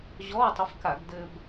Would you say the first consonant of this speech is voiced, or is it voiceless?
voiced